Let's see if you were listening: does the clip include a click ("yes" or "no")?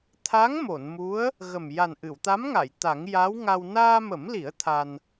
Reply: no